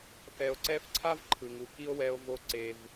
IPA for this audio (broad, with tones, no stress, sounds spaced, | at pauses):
θ ɛ˨ o̯ ǀ ɛ˦ f ǀʰ a˥ v ǃʰ ɯ˩ ŋ u˩ k i˦ o̯ w ɛ˨ o̯ v o˨ ǀ e˩ v